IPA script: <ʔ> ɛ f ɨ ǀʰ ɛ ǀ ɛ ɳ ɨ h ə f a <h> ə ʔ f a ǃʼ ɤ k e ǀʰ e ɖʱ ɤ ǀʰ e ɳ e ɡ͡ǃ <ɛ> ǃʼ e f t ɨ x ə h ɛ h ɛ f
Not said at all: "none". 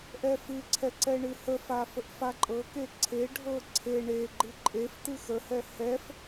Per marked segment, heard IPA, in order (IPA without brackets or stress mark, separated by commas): ʔ, f, ɨ